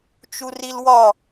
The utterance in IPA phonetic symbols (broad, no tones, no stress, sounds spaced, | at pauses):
t͡ʃ u r i l w ɒ